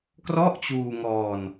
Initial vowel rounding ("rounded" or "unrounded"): rounded